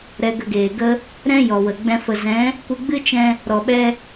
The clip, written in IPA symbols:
ɾ ɛ˧ ɡ ə˧ ɡ eː˨ ɡ ə˦ | ɾ ɛ̃˦ j ɔ˨ w ə˨ ɡ͡b ɛ̃˦ f ə˧ z ɛ̃˨˦ | kʷ ɨ˧ ɡ͡b ɨ˦ t͡ʃ ɛ̃˧ | ɾ ɔ˨ ɓ ɛ˦

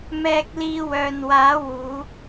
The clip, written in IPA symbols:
m ɛː˧ k̚ l iː˧ w œː˨ n w aː˨˥ w uː˨˥

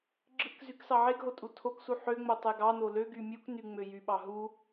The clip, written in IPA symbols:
ɡ͡ǁ ɯ k z y k s ɑ ʕ e ɡ ɦ o tʼ u tʰ o k s u ħ ø ŋ͡m o tˤ e ɡ ɑ n o l ø ɡ y mʲ u k n y ŋ͡m ø j y ɓ ɑ ɦ u

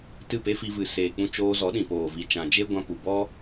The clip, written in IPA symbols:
t ɨ˦˨ p e˦ f i˧ v ɨ˨ s eː˨ k͡p ũ˧ t͡ʃ oː˧ z ɔ˨˦ ɗ ĩ˨ p oː˨ v i˨ t͡ʃ ã˨ d͡ʒ e˦ ɡʷ ã˧ p u˨ b ɔ˦

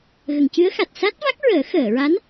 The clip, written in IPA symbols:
ɣ ə˨˩˨ ŋ c ɨ˧˥ ə̯ x a˨˩ t̚ s a˦˥ t̚ v a˦˥ k̚ ɹ əː˨˩˦ x əː˨˩˨ ɹ a˧˥ n

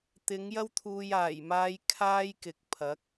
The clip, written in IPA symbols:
t̪ ɪ˨˥ ŋ j ɐ˥ w t̪ʰ uː˧ j aː˨˩ j m aː˧ j kʰ aː˥ j k ɪ˨ k̚ pʰ ɐ˨˥ k̚

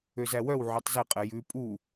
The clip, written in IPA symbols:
ø z æ w œ w ʕ œ tˤ z e qʼ ɛ j ʉ pʼ u

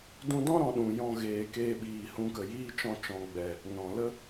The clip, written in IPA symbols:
d ũ˧ d ɔ̃˦ ɾ ɔ̃˨ ɗ ũ˨ j ɔ̃˨ ɣ eː˨ k eː˧ ɓ iː˨ h ũ˧ k ə˨ j iː˦ t͡ʃ ɔ̃˧ t͡ʃ ɔ̃˨ ɡ͡b ɛ˨ | n ɔ̃˨ l ə˦

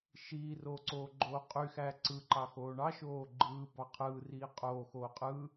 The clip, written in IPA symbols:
ʃ iː r oː ǀ oː ɡ͡ǃ oː qʼ y x æː ǀ ɯ ǃ ɑ x oː ɳ ɑ ʃ oː ɡ͡ǃ ɯː b ɑ qʰ ɯː r iː qʼ oː x oː qʼ ɯ

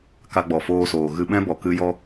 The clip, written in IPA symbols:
k a˧ ɡ͡b ɔ˨ f oː˧ s oː˨ ɣ ɨ˧ ɓ ɛ̃˦ b ɔ˨ k ɨ˧ j ɔ˧

